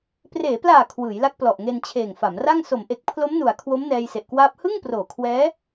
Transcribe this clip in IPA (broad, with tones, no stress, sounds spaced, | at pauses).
p r eː˩˦ p l aː˨˩ kʰ w ɯː˩˦ j l a˦˥ k̚ p l ɔ˨˩ ʔ ŋ e˧ n t͡ɕʰ eː˨˩ ŋ f a˩˦ m r a˥˩ ŋ s o˩˦ m ʔ e˨˩ k̚ pʰ l o˦˥ m n u˨˩ a̯ kʰ w o˦˥ m n ɛː˧ j s e˨˩ ʔ k w aː˦˥ p̚ h ɯ˥˩ ŋ p r oː˨˩ kʰ w ɛː˦˥